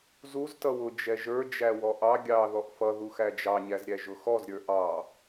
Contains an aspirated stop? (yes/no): no